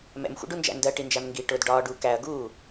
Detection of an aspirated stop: absent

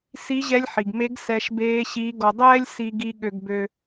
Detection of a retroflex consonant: absent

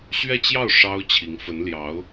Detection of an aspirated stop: present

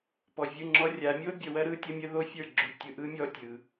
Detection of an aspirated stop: absent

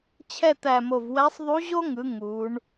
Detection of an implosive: absent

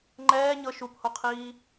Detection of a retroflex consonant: absent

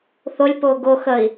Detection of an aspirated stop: absent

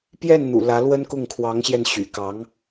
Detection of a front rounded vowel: present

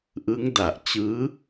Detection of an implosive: absent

